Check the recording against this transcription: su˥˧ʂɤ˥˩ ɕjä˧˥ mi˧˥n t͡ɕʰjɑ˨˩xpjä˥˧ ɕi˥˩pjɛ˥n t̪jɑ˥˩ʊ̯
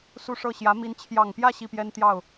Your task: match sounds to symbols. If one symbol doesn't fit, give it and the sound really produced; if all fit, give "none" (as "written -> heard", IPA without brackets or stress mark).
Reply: x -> ŋ